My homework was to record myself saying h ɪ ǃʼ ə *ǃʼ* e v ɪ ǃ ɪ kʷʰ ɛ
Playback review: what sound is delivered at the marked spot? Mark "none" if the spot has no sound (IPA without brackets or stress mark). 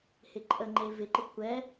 ŋ͡ǃ